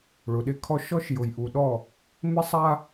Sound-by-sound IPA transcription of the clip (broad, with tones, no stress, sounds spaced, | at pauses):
ɭ ʊ˨ ɗ ɪ˦ kʰ ɔ˦ ʃ ɔ˦ ʃ j ʊ˨ j ʔ u˨ ɗ ɔ˦˨ | m ɪ˦ sˤ a˦